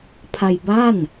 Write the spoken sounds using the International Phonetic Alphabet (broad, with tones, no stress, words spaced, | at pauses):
pʰa˧jba˥˩n